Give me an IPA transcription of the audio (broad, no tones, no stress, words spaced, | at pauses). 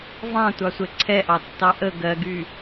vɑ̃tʷɑsʷɛ ǀʰɛʔɑtːɑ ʔə ɡɜɡy